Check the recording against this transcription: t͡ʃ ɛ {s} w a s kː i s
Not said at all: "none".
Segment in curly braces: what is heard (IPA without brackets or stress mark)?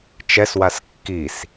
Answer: s